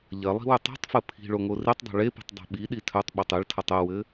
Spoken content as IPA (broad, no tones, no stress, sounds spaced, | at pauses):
ʎ ɐ lˠ i̤ w ʏ tˤ i̤ tˤ f ɘ pʰ i̤ ɭ o ŋ o r i tˤ dˤ o̤ ɭ e p i̤ tˤ dˤ e̤ ɓ i ɗ i tʰ œ tˤ ɓ e tˤ e ɭ tʰ ɐ tˤ ɘ w ɘ